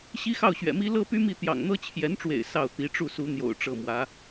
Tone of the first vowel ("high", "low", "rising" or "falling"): high